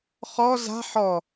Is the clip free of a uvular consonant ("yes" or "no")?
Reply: no